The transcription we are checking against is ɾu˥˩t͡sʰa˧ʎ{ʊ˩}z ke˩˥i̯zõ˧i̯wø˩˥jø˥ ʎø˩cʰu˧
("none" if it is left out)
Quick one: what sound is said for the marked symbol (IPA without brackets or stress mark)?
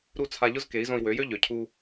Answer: ʊ˥